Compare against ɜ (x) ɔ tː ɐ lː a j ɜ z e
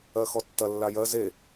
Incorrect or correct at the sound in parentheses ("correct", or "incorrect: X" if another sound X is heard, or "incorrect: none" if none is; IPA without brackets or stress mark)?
correct